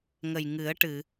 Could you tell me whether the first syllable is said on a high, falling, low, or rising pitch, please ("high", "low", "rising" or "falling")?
low